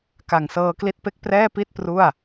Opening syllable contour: low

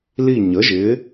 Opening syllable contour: falling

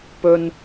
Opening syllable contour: low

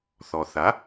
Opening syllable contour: low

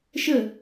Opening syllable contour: falling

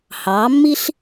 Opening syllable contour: rising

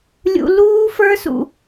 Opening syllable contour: low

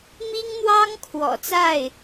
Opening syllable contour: high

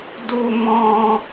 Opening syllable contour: high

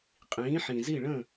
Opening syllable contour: rising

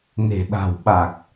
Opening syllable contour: low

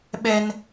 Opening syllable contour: high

